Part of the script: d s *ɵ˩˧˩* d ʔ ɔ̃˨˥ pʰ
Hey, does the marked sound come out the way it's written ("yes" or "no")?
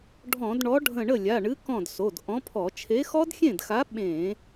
no